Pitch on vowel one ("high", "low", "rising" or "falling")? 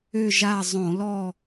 falling